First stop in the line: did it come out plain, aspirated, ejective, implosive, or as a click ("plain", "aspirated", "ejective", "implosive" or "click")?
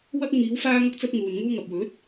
plain